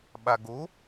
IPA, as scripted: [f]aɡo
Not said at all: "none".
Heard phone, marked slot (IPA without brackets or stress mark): ɓ